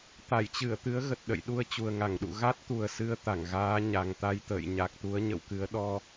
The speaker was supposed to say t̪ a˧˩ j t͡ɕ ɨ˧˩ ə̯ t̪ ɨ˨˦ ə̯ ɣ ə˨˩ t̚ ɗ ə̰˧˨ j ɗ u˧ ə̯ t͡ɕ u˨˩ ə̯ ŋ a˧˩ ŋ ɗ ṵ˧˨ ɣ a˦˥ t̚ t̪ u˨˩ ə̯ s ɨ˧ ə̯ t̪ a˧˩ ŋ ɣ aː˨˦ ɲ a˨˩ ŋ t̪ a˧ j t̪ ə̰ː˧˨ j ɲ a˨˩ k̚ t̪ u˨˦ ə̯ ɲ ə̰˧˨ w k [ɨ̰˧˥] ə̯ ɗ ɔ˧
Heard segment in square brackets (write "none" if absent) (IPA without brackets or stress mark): ɨ˨˦